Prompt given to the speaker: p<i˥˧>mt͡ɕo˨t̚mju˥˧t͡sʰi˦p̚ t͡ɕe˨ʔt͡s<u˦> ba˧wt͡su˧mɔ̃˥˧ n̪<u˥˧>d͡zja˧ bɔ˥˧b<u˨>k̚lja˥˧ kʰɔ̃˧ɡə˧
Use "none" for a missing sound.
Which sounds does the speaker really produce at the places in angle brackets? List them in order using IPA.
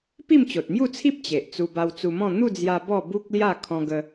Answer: i˥˧, u˧, u˥˧, u˦

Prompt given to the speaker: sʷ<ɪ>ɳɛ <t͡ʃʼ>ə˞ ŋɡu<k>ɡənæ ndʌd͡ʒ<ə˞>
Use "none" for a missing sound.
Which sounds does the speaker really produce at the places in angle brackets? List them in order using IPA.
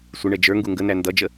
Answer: ɪ, d͡ʒ, ŋ, ə

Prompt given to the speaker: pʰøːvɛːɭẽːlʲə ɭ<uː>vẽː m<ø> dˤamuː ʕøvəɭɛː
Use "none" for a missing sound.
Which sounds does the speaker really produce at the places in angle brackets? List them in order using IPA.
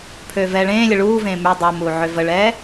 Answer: uː, y

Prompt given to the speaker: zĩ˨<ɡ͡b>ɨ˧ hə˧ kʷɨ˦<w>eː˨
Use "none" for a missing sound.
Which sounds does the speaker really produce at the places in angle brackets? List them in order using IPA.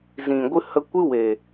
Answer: ɡʷ, w

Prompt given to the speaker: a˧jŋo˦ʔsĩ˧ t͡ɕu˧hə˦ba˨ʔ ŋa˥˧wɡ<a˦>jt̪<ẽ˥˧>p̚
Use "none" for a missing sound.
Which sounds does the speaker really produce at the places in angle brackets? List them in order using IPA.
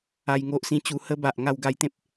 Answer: a˦, ẽ˦

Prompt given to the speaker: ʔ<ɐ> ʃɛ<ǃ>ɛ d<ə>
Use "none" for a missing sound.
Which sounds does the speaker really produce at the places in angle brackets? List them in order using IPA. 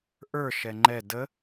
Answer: ə˞, ŋ͡ǃ, ə

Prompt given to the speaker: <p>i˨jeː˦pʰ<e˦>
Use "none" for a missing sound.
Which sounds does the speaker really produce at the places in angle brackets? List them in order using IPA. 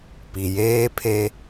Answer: p, e˦

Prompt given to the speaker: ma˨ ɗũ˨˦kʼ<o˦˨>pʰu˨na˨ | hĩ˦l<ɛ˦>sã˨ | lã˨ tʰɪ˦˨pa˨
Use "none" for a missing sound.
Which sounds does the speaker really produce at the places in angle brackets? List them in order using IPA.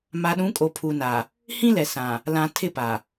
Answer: o˨, ɛ˨

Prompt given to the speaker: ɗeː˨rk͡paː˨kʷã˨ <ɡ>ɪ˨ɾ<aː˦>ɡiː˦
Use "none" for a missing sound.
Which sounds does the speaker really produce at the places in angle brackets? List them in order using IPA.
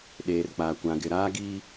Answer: ɡ, aː˦

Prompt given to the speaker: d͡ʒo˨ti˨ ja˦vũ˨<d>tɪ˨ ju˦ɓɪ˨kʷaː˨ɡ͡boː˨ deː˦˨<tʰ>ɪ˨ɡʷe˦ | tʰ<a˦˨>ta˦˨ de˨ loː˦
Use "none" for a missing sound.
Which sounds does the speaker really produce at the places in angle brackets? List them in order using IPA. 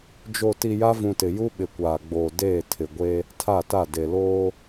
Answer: none, tʰ, a˦˨

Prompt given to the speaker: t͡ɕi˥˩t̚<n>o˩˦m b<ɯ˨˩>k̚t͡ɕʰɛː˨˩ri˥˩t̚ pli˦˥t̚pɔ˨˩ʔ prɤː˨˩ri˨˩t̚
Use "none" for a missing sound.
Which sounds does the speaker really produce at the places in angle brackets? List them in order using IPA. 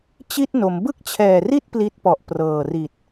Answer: n, ɯ˥˩

